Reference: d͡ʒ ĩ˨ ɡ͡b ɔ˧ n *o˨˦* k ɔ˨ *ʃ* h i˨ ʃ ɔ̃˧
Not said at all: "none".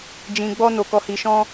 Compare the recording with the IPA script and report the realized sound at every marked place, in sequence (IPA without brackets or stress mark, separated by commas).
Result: o˨, none